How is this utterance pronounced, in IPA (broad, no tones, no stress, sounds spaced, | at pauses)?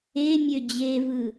e mʲ ø d͡ʑ e v ɯ